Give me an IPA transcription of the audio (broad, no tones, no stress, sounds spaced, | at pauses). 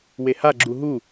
w e h a ɡ͡ǁ u ɦ u